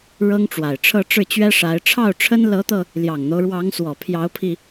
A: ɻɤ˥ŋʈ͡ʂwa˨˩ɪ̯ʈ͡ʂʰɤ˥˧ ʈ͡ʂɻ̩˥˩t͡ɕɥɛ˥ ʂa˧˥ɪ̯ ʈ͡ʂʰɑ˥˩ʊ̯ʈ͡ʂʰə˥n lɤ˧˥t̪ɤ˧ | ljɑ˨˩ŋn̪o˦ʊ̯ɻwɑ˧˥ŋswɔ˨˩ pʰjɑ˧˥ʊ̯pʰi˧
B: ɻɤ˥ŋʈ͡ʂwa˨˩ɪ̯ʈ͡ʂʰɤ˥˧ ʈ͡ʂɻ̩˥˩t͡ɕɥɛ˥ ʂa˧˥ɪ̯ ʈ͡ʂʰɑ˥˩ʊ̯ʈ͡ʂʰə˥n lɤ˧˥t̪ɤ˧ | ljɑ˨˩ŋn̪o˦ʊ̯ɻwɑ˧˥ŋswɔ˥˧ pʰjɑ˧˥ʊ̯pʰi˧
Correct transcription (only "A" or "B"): A